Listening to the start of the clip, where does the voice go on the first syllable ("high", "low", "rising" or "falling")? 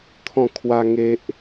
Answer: falling